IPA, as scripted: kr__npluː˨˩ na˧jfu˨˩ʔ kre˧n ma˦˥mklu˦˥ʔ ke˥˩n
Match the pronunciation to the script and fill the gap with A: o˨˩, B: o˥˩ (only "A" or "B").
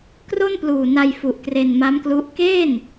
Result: B